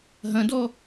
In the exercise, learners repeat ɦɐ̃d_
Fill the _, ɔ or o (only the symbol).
ɔ